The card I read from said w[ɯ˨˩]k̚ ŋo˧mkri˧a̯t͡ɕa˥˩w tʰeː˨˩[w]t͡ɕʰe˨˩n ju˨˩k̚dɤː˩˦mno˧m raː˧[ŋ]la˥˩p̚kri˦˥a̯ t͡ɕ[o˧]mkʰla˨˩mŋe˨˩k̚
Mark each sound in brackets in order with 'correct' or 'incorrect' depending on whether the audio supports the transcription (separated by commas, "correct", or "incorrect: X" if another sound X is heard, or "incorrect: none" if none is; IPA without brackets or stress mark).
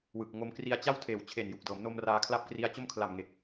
correct, correct, incorrect: kʰ, incorrect: o˥˩